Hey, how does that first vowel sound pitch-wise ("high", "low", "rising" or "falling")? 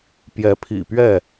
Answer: rising